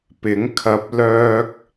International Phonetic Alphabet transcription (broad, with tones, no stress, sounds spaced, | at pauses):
p ɪ˨˥ ŋ kʰ ɐ˧ p̚ l œː˧ k̚